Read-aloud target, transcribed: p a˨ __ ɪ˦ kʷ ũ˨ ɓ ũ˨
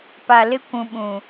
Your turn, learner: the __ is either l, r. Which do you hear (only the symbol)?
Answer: l